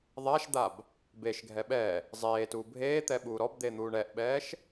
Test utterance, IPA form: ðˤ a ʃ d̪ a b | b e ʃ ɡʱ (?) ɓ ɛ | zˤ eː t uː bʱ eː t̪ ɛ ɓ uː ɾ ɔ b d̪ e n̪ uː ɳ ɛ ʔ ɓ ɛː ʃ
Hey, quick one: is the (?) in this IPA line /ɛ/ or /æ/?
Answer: ɛ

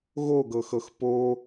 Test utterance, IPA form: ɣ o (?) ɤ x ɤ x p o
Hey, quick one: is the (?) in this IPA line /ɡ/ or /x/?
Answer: ɡ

